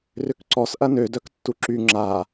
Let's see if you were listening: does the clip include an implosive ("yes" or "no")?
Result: no